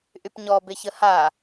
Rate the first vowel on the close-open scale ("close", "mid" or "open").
close